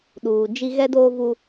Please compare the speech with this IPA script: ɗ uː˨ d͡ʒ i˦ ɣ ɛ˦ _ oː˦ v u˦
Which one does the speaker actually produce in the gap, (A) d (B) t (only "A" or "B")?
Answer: A